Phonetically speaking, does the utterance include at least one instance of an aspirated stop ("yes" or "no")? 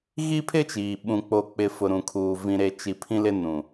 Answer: yes